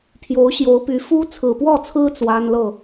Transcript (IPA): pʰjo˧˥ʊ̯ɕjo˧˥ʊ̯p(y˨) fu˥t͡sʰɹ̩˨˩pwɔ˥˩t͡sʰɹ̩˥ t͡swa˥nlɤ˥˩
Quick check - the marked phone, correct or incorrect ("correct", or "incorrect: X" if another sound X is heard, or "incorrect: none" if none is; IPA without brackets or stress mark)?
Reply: incorrect: y˧˥